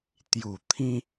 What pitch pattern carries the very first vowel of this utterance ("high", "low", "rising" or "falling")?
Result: low